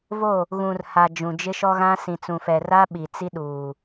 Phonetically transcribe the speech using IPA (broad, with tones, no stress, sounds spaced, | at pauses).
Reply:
v o˦˨ | ɣ ũ˨ r h a˨ d͡ʒ ũ˨ d͡ʒ ɪ˦ ʃ ɔ˦ ɣ ã˦ s ĩ˨ t͡s ũ˨ f ɛ˨ r a˦ ɓ i˨ t͡s i˦ ɗ uː˨